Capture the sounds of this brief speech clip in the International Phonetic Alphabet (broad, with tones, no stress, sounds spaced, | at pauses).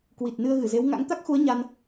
k w i˨˩ t̚ n ɨ˧ ə̯ ɣ ɨ˧˩ z e˨˦ w ŋ a̰˧˥ ŋ t̪ a˦˥ k̚ x u˨˦ ə̯ ɲ a˧ n